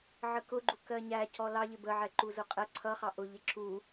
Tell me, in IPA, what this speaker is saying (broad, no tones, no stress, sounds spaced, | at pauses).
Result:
ʕ ə k ʊ ɡ͡ǃ u k ɜ ɲ æ c ɔ l ɑ ʎ ɪ b ə ʕ ɛ ǃ u z ʊ qʼ ɛ ǀʰ ʌ χ ɑ ʔ ʊ ʎ ɪ ǁ u